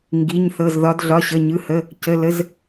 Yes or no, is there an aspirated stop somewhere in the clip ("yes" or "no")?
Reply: no